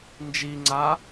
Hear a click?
yes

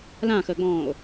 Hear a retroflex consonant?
no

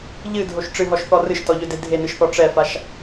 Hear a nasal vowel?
no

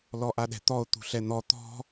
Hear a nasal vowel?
no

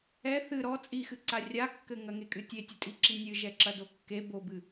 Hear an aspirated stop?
no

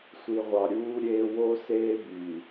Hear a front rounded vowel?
yes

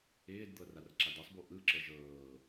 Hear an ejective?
no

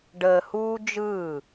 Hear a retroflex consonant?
yes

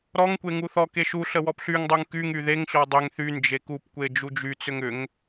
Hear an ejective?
no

